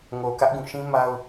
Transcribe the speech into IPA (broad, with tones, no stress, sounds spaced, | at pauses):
ŋ o˨ k ä˦ ʔ ɡ ũ˦˨ ʃ ĩ˦ m a˦ ʊ̯